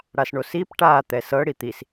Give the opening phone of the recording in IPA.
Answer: ɽ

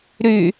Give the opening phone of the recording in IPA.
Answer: ɾ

